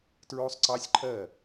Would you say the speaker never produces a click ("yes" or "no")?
no